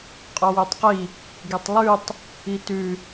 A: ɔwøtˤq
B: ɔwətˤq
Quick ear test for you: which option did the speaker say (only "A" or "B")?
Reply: A